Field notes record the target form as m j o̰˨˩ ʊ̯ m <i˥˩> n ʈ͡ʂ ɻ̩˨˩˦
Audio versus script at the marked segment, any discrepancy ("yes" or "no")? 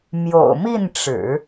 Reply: no